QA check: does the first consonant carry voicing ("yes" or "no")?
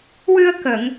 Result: yes